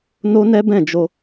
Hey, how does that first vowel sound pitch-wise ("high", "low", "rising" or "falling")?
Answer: high